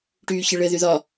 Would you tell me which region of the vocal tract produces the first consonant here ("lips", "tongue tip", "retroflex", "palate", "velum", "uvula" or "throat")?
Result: retroflex